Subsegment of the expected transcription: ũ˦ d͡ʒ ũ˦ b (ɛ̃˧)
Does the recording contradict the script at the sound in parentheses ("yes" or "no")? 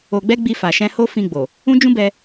yes